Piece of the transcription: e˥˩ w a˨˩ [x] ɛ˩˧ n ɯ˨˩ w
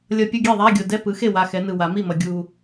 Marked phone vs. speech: correct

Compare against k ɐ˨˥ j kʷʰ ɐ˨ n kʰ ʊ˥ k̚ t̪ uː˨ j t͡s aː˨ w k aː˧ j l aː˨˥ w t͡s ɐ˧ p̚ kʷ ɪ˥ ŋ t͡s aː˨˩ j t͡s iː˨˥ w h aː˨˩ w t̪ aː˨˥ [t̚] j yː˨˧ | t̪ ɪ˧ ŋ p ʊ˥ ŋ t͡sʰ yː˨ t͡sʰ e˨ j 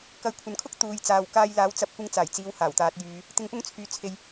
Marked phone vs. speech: correct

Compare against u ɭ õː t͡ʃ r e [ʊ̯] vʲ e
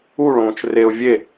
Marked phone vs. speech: correct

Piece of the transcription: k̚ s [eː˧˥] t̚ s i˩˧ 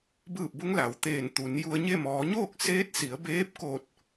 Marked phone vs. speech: correct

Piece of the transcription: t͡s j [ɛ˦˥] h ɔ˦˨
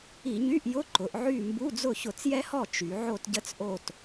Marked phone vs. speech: correct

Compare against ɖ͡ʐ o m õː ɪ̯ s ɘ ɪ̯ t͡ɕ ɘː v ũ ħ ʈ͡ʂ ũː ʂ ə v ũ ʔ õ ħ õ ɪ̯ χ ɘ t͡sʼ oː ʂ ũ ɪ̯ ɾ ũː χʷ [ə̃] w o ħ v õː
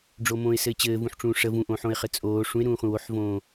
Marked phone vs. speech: correct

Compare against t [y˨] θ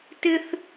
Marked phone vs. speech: incorrect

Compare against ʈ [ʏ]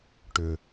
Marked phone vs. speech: correct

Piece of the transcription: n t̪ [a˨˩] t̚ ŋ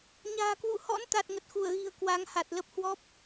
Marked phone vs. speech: correct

